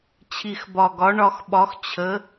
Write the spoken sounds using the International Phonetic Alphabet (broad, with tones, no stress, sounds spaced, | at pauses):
t͡ɕʰ i˨˩ x b ɒ˨˩ ɡ ɒ˨˥ ɳ ɒ˧ x ɓ ɒ˨˥ x t͡ɕʰ ə˨˥